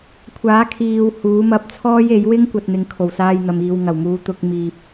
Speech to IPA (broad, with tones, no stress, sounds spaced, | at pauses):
kʷʰ aː˨˥ kʰ iː˨ w h uː˨˥ m ɐ˧ p̚ t͡sʰ ɔː˥ j e˨˥ j w ɪ˥ ŋ kʷ ɐ˨ t̚ n̪ ɪ˨˧ ŋ kʰ o˨˩ w s aː˧ j n̪ ɐ˨ m iː˨ w ŋ ɐ˨˩ w m uː˨˧ t̪ ʊ˧ k̚ m iː˨ p̚